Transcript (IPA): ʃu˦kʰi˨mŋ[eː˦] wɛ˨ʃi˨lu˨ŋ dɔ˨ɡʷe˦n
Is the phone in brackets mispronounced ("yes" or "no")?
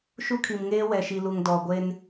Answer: no